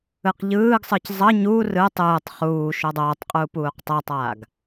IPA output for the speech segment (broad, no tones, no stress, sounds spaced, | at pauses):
ɯ q ʎ ɯː ɡ sˤ ɯ c zˤ ʌ ɲ u r ɯ tˤ ɯː tˤ χ uː ʃ o dˤ oː tˤ qʼ u p uː q tˤ ɛ tˤ aː ɡ